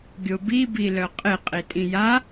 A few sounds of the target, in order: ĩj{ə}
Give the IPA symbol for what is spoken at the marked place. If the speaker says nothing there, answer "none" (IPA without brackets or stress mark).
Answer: a